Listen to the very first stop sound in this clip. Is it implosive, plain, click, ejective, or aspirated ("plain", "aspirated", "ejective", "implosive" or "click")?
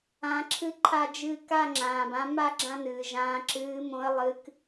click